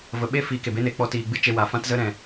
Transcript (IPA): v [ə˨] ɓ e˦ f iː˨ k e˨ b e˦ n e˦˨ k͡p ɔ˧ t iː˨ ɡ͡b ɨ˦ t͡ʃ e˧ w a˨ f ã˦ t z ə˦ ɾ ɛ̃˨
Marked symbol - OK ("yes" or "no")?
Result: yes